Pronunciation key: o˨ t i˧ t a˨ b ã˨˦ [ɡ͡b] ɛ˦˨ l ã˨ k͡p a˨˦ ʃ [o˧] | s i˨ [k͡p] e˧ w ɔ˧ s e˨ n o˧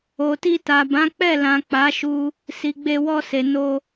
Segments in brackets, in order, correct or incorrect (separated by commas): incorrect, incorrect, incorrect